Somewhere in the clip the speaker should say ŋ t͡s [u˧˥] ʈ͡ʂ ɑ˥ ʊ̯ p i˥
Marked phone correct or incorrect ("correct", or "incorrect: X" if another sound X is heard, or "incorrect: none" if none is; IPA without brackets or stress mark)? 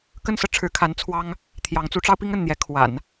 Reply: correct